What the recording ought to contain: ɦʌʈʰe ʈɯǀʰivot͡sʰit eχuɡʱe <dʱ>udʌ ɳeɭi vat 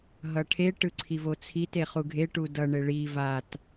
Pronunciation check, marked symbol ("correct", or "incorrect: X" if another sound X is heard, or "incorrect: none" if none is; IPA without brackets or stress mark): incorrect: ʈ